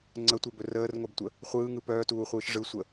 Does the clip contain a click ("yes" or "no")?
yes